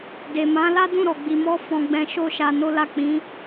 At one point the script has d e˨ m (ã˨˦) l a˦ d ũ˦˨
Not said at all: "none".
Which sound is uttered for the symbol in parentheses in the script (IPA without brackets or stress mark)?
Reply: ã˨˦